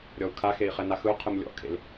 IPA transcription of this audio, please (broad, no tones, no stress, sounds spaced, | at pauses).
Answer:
ɾʲ ɔ u̯ kʰ a x e i̯ χ ɛ n a x ɯ u̯ qʰ ɯ m lʲ ɔ̰ kʰ ḛ l